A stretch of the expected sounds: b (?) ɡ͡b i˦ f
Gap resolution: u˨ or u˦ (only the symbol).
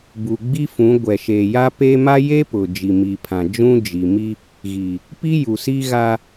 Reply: u˨